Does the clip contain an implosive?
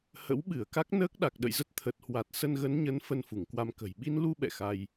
yes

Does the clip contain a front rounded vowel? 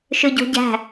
yes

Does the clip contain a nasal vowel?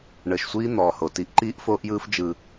no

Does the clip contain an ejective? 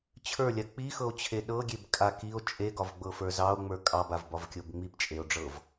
yes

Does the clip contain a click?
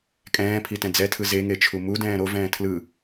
no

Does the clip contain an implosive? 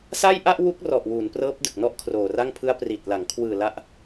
no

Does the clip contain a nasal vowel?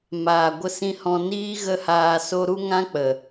yes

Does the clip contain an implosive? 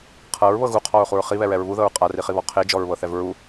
no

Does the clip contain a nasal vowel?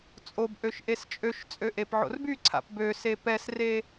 no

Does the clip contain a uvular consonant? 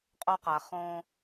yes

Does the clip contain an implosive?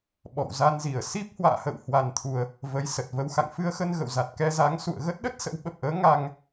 yes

